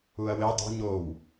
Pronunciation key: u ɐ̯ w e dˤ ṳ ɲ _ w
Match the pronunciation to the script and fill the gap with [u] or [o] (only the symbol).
o